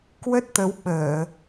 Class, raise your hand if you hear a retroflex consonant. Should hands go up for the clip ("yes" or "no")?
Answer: no